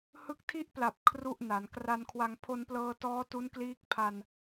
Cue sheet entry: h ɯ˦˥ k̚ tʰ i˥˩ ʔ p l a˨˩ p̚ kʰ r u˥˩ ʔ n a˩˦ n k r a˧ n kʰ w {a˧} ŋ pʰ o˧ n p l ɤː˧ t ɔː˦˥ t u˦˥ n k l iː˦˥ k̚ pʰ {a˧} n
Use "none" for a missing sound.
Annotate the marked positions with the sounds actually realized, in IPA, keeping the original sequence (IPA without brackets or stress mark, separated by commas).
a˧, a˧